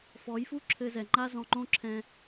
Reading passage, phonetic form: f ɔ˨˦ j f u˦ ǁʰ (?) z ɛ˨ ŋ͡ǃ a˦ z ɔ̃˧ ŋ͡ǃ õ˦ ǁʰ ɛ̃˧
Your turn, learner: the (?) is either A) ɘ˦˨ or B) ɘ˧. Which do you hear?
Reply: B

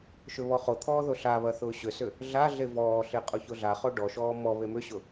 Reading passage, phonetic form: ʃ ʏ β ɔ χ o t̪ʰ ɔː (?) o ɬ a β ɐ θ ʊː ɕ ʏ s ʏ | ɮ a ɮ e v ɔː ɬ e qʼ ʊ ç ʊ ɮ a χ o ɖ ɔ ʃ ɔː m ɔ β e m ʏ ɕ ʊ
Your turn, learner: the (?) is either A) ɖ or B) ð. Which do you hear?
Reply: B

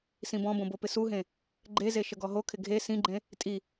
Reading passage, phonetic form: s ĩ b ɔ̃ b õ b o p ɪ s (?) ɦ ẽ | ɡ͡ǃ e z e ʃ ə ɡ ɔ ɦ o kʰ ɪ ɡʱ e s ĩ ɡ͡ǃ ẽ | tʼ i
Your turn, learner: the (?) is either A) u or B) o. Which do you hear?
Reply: A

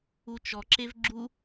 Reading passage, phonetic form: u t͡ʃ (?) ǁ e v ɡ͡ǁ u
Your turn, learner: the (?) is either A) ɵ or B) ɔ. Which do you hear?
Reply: B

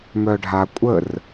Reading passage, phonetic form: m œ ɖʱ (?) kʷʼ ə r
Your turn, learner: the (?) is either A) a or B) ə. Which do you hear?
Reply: A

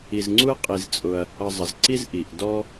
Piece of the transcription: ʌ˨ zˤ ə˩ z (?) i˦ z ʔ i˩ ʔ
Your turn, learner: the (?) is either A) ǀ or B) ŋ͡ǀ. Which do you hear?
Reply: A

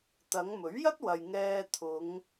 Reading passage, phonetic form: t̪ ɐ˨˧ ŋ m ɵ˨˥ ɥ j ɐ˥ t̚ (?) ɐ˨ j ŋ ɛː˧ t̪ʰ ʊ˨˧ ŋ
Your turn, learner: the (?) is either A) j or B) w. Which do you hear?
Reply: B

